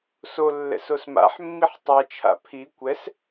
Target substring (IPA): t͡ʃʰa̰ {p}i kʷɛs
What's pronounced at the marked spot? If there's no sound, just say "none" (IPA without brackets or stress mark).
pʰ